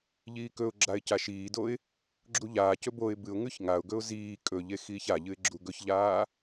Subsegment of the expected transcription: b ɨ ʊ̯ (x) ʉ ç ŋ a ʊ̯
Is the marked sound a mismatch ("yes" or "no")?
yes